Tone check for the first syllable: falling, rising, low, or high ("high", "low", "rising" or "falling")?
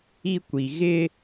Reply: high